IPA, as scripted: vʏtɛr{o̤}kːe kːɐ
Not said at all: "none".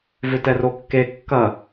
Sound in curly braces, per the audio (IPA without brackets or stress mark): o